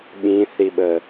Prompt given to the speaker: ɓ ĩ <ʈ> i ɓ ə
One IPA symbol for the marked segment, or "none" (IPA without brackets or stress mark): θ